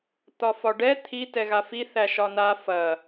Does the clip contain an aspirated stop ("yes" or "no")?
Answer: yes